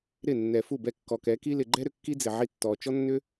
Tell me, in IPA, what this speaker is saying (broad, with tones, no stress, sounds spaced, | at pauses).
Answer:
ɾ ɪ˦˨ nː ɛ˨ f u˦˨ b ɛ˧ kː ɔ˨ k ɛ˨˦ k i˦ l ɪ˨ ɡ͡ǃ ɛ˦ ɾ ʏ˨ kː i˦ d͡z ɪ˨ ʕ i˧ tː ɔ˨ t͡ʃ ɔ˦ nː ʏ˦